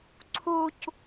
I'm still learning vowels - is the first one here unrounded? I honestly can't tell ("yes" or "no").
no